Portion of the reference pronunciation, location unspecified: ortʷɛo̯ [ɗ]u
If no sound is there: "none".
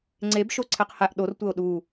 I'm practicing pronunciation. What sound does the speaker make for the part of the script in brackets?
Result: ɗ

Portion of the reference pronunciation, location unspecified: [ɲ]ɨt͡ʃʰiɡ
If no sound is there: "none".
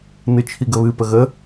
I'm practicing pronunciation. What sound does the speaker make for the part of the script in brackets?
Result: n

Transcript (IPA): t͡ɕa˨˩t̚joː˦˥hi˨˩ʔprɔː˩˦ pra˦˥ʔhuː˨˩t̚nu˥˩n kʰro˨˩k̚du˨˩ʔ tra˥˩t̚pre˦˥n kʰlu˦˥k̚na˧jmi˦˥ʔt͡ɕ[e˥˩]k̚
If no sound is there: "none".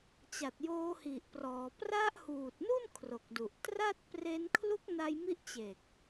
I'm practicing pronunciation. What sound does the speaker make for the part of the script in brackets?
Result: e˨˩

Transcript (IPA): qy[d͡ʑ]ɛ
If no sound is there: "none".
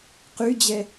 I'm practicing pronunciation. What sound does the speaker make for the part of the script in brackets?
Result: d͡ʑ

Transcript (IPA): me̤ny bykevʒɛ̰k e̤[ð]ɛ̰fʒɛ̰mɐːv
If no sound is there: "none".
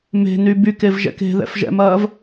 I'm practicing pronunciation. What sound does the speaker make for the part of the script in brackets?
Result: ð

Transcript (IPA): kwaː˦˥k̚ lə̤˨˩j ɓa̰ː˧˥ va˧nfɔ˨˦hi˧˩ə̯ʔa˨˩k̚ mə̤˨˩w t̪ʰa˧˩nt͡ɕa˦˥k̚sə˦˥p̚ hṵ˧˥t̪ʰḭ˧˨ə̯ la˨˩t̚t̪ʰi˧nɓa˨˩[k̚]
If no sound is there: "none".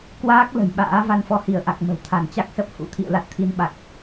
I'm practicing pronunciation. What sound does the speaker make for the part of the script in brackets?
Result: k̚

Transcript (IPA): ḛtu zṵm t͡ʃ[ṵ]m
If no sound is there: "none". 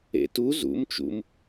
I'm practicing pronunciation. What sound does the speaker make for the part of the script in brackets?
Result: ṵ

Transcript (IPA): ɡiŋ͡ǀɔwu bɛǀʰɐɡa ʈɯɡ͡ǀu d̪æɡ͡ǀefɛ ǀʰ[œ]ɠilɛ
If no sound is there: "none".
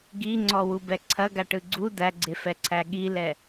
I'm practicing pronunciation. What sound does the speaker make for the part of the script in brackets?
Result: æ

